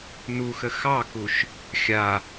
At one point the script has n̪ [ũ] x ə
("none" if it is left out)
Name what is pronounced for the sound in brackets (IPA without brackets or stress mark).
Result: u